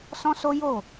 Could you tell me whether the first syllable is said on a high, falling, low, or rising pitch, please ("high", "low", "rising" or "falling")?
high